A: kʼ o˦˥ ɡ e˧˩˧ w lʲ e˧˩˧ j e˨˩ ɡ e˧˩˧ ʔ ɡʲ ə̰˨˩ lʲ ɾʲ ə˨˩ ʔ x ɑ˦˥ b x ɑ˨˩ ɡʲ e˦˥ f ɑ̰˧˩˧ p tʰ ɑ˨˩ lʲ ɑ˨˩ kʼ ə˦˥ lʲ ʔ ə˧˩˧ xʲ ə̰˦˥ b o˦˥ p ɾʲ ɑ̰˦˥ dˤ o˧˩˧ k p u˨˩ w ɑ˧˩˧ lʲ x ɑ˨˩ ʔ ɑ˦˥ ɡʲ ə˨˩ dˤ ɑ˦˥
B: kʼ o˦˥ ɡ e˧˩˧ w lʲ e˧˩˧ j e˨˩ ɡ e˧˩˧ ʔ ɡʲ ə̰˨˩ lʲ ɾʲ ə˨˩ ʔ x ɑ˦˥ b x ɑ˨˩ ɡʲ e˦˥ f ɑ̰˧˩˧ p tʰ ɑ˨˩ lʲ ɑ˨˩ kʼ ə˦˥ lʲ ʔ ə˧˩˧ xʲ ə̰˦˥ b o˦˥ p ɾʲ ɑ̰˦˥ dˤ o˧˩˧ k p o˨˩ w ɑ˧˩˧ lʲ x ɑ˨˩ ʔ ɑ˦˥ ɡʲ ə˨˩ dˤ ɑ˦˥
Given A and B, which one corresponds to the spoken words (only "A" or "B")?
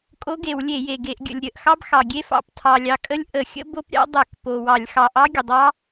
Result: B